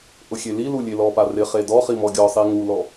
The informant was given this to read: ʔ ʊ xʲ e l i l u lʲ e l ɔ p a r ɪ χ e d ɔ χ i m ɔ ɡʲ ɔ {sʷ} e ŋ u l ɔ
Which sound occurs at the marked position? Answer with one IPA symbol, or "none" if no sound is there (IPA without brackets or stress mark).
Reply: sˤ